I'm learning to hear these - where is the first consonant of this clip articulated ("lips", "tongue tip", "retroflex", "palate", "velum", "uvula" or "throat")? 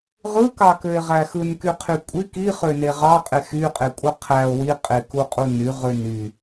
uvula